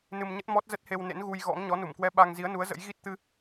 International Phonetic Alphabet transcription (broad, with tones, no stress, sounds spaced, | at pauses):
n ɨ˧ m ɲ ə˦˥ t̚ m ɔ˦˥ t̚ z ə˦˥ t̚ h e˧ w n ḛ˧˥ n ɣ u˧ j ɣ ɔ̰˧˥ ŋ ɲ ɔ˨˦ n u˧˩ m k w ɛ˧ ɓ a˧ ŋ z i˨˦ ə̯ n u˨˦ ə̯ z ə̰˧˥ j ɣ i˦˥ t̚ t̪ ɨ˧